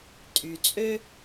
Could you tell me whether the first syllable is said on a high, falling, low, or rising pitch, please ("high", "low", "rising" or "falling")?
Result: low